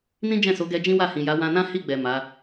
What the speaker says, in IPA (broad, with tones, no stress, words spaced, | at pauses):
nĩ˦d͡ʒɛ̃˦˨so˨˦ɡɛ˧ d͡ʒĩ˦wa˦˨hĩ˨ja˨˦ wã˧nã˦hi˦˨ɡ͡bɛ˨ ma˨˦